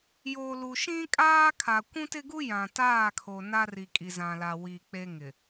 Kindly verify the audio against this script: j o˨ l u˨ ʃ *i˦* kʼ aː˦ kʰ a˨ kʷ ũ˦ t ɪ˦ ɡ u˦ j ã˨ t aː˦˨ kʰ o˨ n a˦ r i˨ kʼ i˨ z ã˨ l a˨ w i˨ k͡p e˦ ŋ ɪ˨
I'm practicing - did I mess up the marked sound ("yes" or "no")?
yes